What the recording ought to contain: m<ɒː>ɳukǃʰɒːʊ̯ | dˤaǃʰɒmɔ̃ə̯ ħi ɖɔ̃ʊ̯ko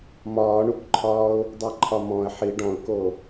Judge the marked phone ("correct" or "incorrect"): correct